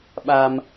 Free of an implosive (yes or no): no